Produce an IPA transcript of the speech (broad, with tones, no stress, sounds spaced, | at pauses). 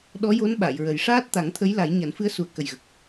ɗ ɔ˧˥ j o˧˥ n ɓ a˨˩˨ j ɹ ə˨˩ j ʂ aː˦˥ t̚ t̪ a˨˩˦ ŋ t̪ʰ ə˧˥ j l a˨˩˦ j ɲ a˨˩˦ n f ɨ˧˥ ə̯ s u˨˩ ə̯ k ə˨˩ j ɣ ə˨˩ k̚